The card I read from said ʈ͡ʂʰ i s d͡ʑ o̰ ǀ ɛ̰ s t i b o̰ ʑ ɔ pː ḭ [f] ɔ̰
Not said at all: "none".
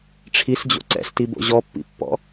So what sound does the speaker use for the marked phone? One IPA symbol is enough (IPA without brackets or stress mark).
pː